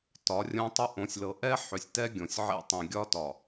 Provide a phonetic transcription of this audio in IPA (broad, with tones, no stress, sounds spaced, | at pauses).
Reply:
t ɒ˨˦ rʲ õ˦ tˤ ʏ˦ ʔ õ˨ sʲ l ɤ˨ ʔ ɛ˦ ħ ʏ˨ sʲ t ɛ˦ ɡʲ õ˨ sʲ ʕ ḛ˦ tˤ ĩ˨ ɡʲ ɒ˦ t ɒ˨